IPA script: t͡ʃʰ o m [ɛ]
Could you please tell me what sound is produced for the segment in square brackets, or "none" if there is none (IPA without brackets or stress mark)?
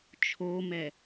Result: ɛ